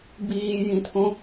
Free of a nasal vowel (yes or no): no